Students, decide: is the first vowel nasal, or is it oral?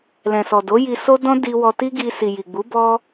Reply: nasal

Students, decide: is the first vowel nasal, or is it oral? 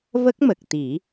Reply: oral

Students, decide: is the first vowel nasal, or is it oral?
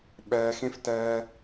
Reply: oral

